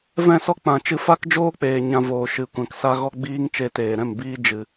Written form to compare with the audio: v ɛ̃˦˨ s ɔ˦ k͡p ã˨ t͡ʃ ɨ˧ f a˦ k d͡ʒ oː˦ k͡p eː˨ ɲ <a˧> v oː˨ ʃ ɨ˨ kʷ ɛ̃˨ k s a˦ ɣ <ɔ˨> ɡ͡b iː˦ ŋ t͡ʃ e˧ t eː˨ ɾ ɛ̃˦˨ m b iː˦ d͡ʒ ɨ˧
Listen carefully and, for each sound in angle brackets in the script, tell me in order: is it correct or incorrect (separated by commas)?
incorrect, incorrect